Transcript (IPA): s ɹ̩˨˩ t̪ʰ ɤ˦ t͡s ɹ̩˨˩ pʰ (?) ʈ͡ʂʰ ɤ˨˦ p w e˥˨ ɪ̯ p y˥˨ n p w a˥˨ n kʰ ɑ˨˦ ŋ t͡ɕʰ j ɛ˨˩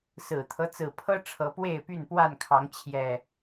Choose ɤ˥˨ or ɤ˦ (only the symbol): ɤ˦